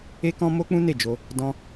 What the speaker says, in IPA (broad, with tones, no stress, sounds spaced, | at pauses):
e˦ k ɔ̃˦ m o˦ k͡p ũ˦ n e˦˨ d͡ʒ o˧ | d ɔ̃˧